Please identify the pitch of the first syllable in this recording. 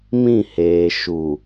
falling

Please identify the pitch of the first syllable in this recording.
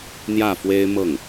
falling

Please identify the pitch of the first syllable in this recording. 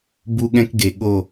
high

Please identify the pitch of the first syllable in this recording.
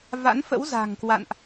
rising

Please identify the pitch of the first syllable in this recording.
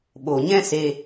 low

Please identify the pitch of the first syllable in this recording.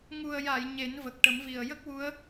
low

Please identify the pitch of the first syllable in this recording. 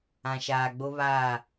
low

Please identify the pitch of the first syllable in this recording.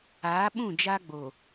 rising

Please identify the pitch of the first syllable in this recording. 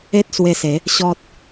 high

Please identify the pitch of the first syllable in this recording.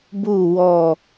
falling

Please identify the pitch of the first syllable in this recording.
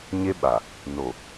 high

